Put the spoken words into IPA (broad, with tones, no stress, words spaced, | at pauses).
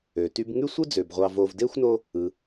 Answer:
ø˩ty˦b ŋy˥sʷɯ˥d͡zø˩bʁʷɑ˨ vo˨vde˥xʷno˦ | ɯ˩